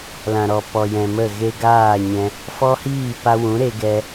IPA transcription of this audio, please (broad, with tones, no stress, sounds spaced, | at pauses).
l ã˨ ɾ ɔ˨ p ɔ˨ j ɛ̃˨ m ə˦˨ ɣ e˦ ɡ aː˦˨ ɲ ɛ̃˧ | f ɔ˦ h iː˦˨ p a˧ w ũ˨˦ ɾ e˦ ɡ ɛ˦